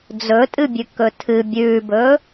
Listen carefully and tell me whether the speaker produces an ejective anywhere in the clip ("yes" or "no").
yes